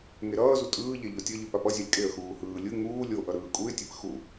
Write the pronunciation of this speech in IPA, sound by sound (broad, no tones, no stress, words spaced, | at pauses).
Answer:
ŋeɾʌːzu tʼɯːʎe ʎotʲʌʎɯ papʌzʲalʲ kʼeə̯xuː hɯː lʲɯ ŋuː lʲoʔʌ ɾɯːkʼuɪ̯tʲep xu